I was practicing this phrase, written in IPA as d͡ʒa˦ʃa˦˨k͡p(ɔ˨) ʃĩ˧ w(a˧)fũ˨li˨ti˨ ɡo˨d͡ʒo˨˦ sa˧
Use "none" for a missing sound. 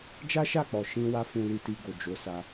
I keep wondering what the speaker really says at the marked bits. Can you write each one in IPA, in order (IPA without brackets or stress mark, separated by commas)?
ɔ˨, a˧